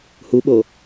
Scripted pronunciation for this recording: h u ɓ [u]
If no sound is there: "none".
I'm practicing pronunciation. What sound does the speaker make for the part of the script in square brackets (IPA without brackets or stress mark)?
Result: o